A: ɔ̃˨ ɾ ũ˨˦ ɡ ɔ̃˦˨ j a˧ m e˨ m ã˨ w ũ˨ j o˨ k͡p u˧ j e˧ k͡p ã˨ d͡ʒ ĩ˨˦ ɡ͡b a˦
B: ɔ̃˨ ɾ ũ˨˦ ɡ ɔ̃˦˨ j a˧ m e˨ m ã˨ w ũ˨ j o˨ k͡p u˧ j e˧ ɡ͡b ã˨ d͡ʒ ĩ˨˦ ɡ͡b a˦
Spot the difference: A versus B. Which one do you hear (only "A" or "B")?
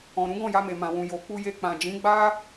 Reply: A